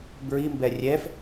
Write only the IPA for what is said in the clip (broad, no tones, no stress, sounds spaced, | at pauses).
b ɹ i m b ɛ rʲ ɛ f